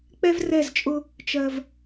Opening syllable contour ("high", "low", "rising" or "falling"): high